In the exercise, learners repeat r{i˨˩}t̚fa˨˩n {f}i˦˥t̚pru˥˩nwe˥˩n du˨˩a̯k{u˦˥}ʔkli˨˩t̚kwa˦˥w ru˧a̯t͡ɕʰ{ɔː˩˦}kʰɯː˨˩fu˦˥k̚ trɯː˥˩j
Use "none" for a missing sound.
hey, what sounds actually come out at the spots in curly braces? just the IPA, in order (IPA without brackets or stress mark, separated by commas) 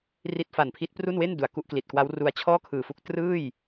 i˦˥, pʰ, u˦˥, ɔː˥˩